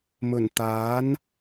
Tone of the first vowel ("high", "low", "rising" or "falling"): low